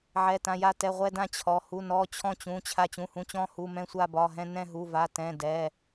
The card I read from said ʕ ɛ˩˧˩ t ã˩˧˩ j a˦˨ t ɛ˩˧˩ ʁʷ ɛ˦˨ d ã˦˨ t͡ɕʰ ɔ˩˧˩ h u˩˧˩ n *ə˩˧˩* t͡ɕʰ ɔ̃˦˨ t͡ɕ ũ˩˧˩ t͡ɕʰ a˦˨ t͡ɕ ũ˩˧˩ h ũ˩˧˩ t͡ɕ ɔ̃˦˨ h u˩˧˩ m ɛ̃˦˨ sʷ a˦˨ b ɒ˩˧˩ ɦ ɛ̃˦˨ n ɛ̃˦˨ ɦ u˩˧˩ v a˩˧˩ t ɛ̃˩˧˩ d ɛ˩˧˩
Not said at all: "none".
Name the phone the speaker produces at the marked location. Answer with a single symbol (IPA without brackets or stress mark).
ɔ˩˧˩